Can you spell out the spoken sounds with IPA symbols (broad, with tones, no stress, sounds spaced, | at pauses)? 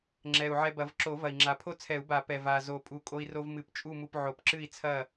ŋ͡ǁ ɛ˨˩ u̯ ʕ ɛ˧ b ɐ˨˩˦ v ǁ o˨˩˦ v ɐ˨˩ i̯ ŋ͡ǁ a˨˩ pʰ o˥˨ t͡sʰ ɛ˨˩˦ u̯ b a˨˩˦ p ɛ˨˩ v a˨˩ z o˨˩ pʼ u˨˩˦ kʼ o˧ i̯ r o˧ v m ɨ˨˩˦ p t͡ʃʼ u˥˨ m u˧ p ʕ o˨˩˦ p ǁ ɨ˥˨ i̯ t͡sʰ ɐ˥˨